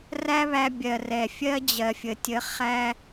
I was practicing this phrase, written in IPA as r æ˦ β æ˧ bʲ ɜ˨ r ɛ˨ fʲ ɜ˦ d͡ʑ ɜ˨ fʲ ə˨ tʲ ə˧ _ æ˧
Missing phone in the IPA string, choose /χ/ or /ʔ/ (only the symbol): χ